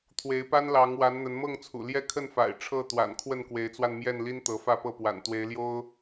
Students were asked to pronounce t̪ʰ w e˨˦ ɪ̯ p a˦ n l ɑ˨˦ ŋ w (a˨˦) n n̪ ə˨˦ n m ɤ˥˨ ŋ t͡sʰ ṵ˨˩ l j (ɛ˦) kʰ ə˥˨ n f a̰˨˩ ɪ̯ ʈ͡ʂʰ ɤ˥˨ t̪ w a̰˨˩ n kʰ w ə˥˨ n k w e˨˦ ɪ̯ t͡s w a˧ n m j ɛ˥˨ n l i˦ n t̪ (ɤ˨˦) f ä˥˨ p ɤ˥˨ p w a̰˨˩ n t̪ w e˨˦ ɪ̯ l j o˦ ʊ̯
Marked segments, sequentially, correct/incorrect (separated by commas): correct, correct, correct